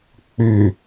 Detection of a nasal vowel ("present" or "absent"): absent